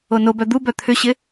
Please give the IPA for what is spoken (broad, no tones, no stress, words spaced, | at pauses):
onobœ d̪ubœ t̪ʰʏɕɪ